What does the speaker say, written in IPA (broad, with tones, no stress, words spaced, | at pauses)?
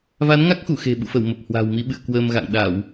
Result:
va˨˦nŋa˦˥k̚xu˧˩ xe̤˨˩ɓṵ˧˨fə˧˩w mə˨˩p̚ hwa̤˨˩wmi˨˦ ɓɨ̰˧˨ə̯kwəː˧mɣa̰˧˨ŋ ɗa˧˩˨w